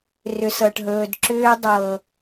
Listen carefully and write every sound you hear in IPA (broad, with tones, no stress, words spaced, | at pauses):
rʏ˨sɤ˨ʈɦɵː˨dǁʏː˦ dˤɤ˨